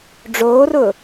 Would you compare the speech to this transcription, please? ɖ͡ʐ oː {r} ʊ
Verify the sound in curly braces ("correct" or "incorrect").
correct